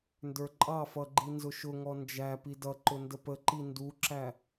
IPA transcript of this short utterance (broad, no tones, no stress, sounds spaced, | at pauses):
n d ə˞ ǃʼ ɑ f ʌ ɡ͡ǃ i n z ʊ ʃ ʊ ŋ ɔ n d͡ʒ æ p i d ʌ ǃ ʊ n d ə p ə ǃ i n d u ǁ æ